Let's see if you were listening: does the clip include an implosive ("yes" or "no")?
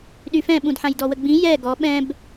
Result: yes